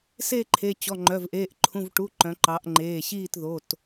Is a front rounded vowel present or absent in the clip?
present